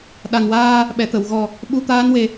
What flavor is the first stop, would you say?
implosive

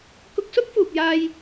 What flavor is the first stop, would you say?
plain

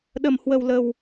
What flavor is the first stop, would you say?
implosive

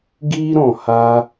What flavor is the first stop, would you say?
plain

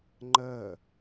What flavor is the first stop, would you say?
click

